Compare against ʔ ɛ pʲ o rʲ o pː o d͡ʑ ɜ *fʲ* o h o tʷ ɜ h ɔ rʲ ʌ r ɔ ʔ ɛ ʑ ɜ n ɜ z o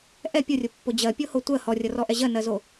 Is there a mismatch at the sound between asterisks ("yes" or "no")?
yes